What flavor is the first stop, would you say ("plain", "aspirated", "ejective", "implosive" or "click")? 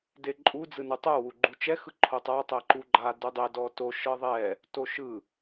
plain